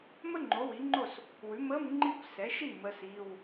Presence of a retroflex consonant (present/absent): absent